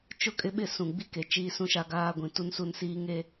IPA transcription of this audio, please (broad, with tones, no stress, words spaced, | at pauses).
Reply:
t͡ʃʊ˦kʼɪ˦ɓɪ˦˨sũ˨ ɡ͡bi˦ke˨t͡ʃiː˦ sũ˦ʃa˦ɡaː˦ɡʷĩ˨ tu˦nsu˦n siː˦ ŋe˦